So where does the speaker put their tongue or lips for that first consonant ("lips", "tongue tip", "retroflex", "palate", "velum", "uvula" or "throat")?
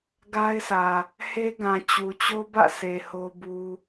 velum